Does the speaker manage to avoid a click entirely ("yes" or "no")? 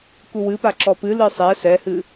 no